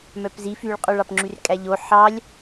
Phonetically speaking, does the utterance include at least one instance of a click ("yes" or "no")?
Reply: yes